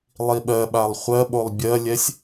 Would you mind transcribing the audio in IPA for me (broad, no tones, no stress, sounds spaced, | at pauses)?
lˠ i ɓ ɜ ɓ a lˠ χʷ ɜ ɓ o lˠ bʲ ɜ lʲ ɛ sʲ